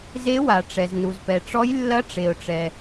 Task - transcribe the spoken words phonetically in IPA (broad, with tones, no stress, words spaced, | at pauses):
ze˨˦wa˩ ʈ͡ʂɛ˩znu˩zpɛ˩ʈ͡ʂɔ˨˦j lːɐ˨˦ʈ͡ʂe˩ʊ̯ʈ͡ʂɛ˩